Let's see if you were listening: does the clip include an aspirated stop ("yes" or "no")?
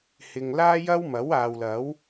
no